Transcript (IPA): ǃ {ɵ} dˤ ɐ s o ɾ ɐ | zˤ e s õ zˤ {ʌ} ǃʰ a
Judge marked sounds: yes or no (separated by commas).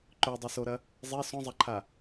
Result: yes, no